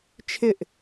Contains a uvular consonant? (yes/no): no